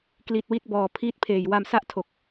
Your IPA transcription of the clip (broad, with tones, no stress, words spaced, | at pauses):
kli˨˩t̚ wi˦˥t̚bɔː˨˩ pʰiː˦˥t̚pʰeː˨˩j wa˧msa˥˩ʔtʰo˨˩k̚